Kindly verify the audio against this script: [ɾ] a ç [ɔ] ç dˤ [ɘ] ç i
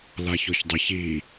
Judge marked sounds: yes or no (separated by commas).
no, yes, yes